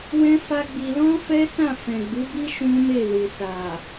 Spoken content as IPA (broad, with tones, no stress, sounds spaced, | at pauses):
w ɛ̃˦ f a˦ ɡ͡b i˧ l ɔ̃˦ f ɛ˦ s ã˦˨ f ɛ̃˨ ɡ͡b u˨˦ b i˦ ʃ ũ˦ m e˦˨ l u˨ s a˨